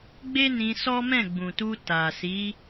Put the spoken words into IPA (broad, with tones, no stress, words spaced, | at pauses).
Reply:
ɡ͡be˦nĩ˧ sɔ˦mɛ̃˦˨ɡ͡bũ˨tu˧ ta˨si˨˦